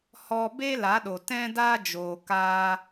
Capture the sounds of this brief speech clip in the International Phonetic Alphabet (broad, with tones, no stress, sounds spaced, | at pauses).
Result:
h ɔ˧ b e˦ l a˨˦ ɗ o˨ t ɛ̃˦ d aː˦ d͡ʒ oː˨ k aː˧